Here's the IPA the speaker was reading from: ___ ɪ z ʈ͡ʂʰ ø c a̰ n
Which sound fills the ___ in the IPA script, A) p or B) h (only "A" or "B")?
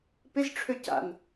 A